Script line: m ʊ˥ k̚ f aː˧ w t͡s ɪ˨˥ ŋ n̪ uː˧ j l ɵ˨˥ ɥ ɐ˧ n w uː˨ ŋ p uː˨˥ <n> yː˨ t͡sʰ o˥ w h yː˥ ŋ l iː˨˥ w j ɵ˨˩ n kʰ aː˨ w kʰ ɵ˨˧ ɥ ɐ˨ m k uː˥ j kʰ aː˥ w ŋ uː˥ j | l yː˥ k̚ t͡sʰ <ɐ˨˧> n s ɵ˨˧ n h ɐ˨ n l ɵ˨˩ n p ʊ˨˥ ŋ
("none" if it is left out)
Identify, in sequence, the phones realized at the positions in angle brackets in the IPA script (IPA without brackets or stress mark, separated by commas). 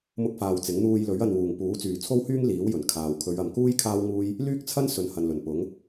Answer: t͡s, ɐ˥